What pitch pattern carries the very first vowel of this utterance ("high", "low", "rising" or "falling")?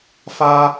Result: high